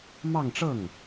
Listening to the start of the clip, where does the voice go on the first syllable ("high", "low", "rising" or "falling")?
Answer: falling